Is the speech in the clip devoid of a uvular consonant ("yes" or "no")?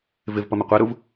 no